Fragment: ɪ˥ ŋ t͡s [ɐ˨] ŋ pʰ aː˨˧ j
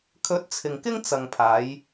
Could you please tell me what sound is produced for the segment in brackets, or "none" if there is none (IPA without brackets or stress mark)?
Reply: ɐ˨